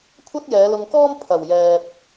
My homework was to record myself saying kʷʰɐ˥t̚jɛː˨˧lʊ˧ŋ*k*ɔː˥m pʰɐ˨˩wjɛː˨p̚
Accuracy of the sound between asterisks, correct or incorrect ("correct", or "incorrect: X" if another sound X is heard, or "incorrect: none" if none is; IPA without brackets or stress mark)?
correct